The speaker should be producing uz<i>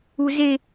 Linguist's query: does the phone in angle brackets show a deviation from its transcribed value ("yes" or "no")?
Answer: yes